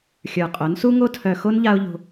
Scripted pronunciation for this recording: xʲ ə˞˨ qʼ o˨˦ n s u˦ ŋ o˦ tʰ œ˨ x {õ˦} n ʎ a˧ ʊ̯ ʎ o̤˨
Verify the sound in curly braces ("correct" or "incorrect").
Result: incorrect